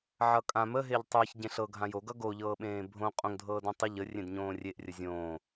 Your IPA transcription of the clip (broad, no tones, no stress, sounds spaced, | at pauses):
ʕ ʌ kʼ ã m ə ɦ e ʎ tˤ əː ç ɟ ẽ ɬ ɤ ɡʱ ã j o ɡ ʌ ɡ o ʎ ɤː ɓ ẽː bʱ õ qʼ õ ŋ dʱ ɤː d ẽ tˤ ə ʎ ə rʲ ẽ d ɲ õː rʲ e ʔ rʲ ə zʲ õː